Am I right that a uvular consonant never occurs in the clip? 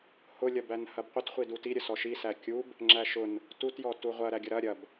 no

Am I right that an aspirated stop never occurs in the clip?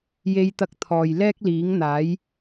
no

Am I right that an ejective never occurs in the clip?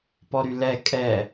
no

